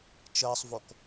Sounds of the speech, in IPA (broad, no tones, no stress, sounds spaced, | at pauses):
t͡ʃ əː sˤ v o k